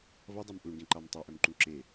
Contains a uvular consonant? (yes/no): no